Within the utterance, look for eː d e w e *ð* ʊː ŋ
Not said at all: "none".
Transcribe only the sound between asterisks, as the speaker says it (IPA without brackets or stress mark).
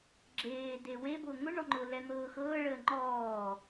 b